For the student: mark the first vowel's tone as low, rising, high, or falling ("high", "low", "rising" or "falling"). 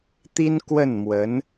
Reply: high